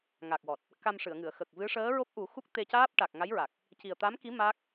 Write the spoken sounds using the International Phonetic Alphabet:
ŋ a˨˩ k̚ w ɔ˨˩ t̚ | k a˧ m ʂ ɨ˨˩˨ ə̯ ŋ ɨ˨˩˨ ə̯ x ə˨˩ k̚ v ɨ˧˥ ʂ əː˧˥ ɹ o˦˥ p̚ ʔ u˨˩˦ x u˦˥ k̚ t̪ e˧ c aː˦˥ p̚ ʈ a˨˩ k̚ ŋ a˧˥ j ɹ a˨˩ k̚ | c i˨˩ ə̯ t̪ a˧˥ m k i˧˥ m a˦˥ k̚

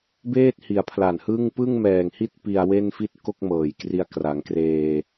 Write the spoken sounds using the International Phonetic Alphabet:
b eː˥˩ t̚ h i˩˦ a̯ pʰ l a˨˩ n h ɯ˥˩ ŋ p ɯ˥˩ ŋ m ɛː˨˩ ŋ h i˥˩ t̚ p i˧ a̯ w e˥˩ n f i˥˩ t̚ k o˥˩ k̚ m ɤː˨˩ j k r i˧ a̯ k r a˩˦ ŋ k r eː˧

